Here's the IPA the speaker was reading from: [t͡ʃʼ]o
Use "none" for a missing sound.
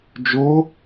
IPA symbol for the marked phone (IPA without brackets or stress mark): d͡ʒ